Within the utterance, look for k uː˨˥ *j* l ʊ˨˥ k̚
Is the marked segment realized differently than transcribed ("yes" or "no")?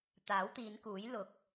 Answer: no